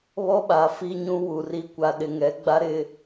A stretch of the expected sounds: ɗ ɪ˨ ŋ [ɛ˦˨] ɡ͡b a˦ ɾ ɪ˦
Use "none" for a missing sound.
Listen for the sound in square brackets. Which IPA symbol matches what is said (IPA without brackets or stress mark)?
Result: ɛ˨˦